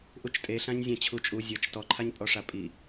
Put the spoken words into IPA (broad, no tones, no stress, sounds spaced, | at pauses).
ʔ u t͡ʃ tʼ e ɬ ã ɲ zʲ ã t͡ɕʰ u t͡ʃʼ u zʲ ɤ t͡ʃ t ɔ ǃʰ a ɲ pʼ ɔ ʂ a pʼ i